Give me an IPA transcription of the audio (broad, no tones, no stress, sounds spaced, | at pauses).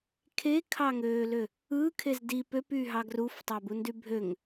kʰ e kʰ ɑ ŋ øː l ø | ɯ kʰ e z d i p ø p y ɦ ɑ ɡ r u f tˤ ɑ b u n d y bʱ ø ŋ